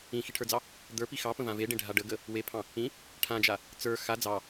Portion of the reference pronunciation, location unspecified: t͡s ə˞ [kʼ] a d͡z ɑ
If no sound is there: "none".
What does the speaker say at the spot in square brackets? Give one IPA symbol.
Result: x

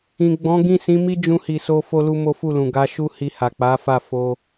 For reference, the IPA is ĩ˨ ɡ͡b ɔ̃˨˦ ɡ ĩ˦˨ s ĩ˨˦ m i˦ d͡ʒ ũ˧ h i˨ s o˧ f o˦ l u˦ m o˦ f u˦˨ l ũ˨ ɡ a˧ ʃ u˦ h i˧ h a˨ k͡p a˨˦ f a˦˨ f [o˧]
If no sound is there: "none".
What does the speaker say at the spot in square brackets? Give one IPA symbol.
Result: o˧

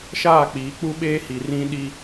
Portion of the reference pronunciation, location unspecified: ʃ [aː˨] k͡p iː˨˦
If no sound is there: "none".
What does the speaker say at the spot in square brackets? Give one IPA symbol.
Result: aː˦˨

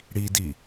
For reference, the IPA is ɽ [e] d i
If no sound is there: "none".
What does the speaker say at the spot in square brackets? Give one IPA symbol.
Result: i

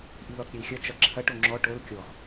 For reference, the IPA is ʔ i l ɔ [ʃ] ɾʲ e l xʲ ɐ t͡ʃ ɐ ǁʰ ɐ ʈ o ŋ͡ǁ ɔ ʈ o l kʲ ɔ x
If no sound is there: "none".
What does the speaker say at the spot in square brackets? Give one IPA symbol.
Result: t͡s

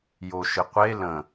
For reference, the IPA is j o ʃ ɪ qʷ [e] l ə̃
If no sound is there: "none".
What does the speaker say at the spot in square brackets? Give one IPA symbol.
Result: e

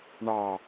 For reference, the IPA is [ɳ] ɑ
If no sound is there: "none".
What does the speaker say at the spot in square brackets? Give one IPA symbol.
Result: ɳ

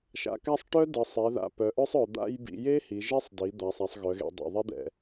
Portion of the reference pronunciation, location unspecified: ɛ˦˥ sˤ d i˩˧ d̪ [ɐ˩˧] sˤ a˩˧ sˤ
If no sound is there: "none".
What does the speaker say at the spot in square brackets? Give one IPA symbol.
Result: a˩˧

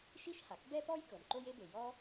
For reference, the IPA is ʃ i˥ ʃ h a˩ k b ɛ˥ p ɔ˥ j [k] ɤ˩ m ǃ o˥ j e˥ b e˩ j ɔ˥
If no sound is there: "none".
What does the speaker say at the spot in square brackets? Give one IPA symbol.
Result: k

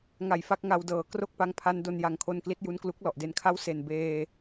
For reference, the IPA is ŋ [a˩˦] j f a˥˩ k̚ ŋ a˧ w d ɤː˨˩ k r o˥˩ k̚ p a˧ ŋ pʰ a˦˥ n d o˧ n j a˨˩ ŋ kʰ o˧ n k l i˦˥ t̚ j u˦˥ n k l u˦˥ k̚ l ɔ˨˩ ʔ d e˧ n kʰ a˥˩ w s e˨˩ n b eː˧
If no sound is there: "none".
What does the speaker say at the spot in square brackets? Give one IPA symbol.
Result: a˨˩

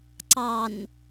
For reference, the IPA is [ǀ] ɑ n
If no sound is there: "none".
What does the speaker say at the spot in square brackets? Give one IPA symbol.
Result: ǀ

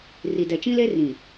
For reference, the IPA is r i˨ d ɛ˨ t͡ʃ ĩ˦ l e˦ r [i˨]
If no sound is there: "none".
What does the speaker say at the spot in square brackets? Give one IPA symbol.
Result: ĩ˨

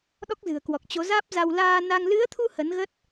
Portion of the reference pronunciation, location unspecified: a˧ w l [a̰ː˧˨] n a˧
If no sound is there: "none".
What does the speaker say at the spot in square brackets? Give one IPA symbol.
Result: aː˧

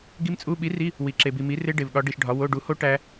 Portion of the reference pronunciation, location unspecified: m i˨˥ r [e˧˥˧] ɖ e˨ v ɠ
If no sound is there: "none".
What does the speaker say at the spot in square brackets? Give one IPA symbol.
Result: e˦˥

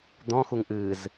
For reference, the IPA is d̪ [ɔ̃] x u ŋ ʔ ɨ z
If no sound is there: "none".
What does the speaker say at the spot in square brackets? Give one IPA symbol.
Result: ɔ̃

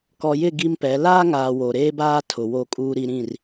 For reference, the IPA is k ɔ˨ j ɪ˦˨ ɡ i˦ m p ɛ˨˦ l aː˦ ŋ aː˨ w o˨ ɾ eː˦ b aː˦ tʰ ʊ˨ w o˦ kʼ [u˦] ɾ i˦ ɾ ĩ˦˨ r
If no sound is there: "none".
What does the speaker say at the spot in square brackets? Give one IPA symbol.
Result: uː˦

